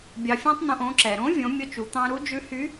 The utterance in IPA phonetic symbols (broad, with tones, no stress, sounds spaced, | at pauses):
bʲ ɑ˧ fʲ ɑ̃˥ tˤ n̪ õ˧ ʔ õ˩˧ ǁ ɛ˩ ɾ õ˧˥ vʲ õ˩˧ mʲ o˧ t͡ʃ u˩˧ t̪ ɑ̃˧ ɾ u˧˥ d͡ʒ ʉ˧˥ h y˧˥